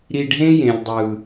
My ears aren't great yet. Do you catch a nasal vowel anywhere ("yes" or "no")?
yes